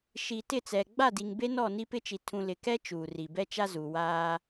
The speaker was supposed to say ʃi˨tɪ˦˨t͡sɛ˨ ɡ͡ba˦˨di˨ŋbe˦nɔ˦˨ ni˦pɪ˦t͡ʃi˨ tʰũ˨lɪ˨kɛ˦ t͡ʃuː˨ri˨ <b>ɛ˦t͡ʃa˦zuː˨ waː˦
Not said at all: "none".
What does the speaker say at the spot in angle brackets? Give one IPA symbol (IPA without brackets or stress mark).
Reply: b